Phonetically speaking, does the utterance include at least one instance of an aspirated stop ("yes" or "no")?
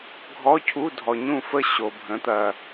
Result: yes